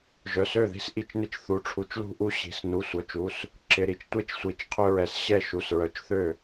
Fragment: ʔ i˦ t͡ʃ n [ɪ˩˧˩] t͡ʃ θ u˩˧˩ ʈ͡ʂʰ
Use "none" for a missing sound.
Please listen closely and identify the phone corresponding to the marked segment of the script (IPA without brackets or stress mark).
ɪ˥˩